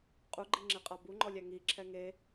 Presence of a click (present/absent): present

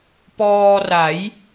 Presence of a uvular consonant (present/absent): absent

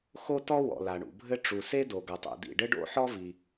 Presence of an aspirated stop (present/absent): absent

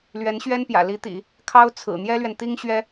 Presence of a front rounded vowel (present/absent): absent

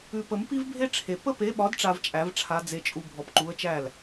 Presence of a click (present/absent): present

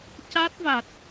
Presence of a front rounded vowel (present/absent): absent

